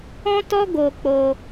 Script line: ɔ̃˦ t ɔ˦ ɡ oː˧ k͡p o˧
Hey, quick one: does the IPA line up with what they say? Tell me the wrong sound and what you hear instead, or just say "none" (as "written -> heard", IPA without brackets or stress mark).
none